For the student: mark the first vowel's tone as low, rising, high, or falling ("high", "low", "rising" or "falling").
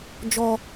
low